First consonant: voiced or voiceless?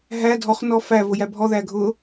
voiced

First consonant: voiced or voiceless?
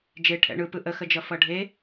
voiced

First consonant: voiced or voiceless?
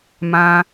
voiced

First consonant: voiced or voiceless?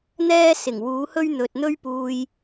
voiced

